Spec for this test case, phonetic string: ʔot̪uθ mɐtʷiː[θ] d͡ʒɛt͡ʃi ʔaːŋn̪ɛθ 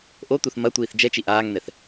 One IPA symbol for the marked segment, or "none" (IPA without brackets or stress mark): θ